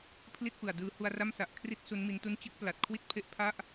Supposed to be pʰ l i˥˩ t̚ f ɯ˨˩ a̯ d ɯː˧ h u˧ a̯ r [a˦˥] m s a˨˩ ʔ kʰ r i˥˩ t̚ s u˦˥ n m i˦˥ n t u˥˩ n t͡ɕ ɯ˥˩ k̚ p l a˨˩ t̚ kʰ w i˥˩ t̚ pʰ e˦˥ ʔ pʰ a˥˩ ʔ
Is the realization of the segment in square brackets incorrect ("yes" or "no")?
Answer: yes